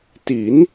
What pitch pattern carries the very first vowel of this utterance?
rising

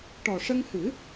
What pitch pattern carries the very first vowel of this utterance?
low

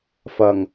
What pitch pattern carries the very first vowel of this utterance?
low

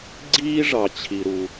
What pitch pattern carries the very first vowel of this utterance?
high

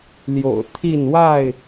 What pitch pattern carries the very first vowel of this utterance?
low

